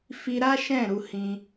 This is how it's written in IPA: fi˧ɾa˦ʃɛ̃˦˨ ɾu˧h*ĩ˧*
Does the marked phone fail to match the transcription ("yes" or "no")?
no